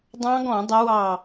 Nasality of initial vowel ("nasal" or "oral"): nasal